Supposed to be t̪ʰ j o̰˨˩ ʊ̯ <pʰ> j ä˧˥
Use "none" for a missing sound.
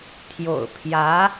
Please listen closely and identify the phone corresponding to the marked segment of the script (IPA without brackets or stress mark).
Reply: pʰ